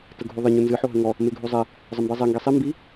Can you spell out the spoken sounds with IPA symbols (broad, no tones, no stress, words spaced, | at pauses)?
təɡʱuðˤə ɲunzɨ ħoɦəŋɔ | meɡʱuzˤe | zˤəmbizˤe ŋɡesˤi mbi